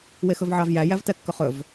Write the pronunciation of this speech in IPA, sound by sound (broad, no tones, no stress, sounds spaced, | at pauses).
w e x ɵ v ʕ ɑ v j æ j æ v t ɛ kː ɵ χ ɵ v